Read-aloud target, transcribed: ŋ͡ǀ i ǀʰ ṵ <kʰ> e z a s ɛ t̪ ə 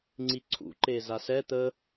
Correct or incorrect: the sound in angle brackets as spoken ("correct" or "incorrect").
incorrect